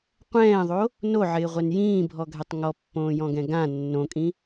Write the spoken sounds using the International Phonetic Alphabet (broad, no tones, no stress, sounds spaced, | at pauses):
qʷ ɛ̃ː ðˤ o | n o ʕ ɪː ʁʷ ɛ n j ĩː bʱ ɔ ɡʱ ɛ tˤ ŋ ɔ pː õː j ɔ̃ ɡ ɛ̃ ɡ ã nː õ kʼ ĩ